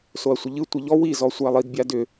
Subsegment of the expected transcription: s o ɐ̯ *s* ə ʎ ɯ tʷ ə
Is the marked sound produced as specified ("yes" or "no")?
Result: no